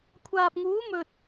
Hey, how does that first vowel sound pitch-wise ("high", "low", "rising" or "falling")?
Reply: low